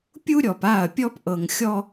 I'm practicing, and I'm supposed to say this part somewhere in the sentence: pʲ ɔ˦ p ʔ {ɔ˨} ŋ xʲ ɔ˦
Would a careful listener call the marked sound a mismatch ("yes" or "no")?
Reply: yes